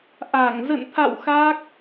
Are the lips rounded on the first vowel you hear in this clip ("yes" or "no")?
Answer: no